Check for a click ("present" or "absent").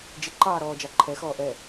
present